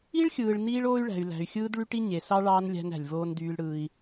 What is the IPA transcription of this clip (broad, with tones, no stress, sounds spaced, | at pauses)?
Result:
i˦ ɭ xʲ ɯː˨ ɭ n iː˦ ɭ oː˦ y̯ ɭ æ̤˨ y̯ l æ̤˨ y̯ xʲ ɯː˦ d ɭ y˦ ʈ i˦ ɲ e˨ s ɑ˦ ɭ ɑː˦ n lʲ æ̤˦ n æ̤˨ lʲ v oː˦ n d yː˦ l ɽ ɯː˦ i̯